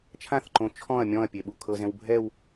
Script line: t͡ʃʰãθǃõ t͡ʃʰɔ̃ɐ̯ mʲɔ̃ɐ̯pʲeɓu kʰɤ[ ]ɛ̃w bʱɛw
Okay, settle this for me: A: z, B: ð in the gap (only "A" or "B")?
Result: A